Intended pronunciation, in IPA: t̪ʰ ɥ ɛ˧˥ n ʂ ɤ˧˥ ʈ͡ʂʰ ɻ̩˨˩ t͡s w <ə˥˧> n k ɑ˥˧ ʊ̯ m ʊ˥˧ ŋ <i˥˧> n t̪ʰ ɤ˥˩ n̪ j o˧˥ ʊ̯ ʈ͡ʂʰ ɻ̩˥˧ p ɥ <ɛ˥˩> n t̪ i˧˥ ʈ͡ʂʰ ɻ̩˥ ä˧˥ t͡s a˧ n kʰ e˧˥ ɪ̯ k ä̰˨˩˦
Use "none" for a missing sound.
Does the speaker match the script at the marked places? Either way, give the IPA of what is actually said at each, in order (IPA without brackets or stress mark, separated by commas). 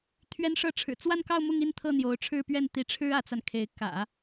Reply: a˥˧, i˥˧, ɛ˥˩